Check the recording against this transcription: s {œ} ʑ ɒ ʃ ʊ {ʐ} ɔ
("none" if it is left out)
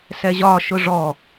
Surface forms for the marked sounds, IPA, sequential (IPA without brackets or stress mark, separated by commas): ɛ, ʐ